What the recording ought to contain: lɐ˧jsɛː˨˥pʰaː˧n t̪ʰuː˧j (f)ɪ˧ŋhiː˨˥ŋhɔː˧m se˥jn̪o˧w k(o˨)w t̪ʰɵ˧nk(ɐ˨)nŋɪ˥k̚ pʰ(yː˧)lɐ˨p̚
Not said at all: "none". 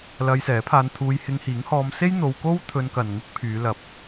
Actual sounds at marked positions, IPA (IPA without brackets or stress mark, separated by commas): h, o˥, ɐ˨, yː˨˧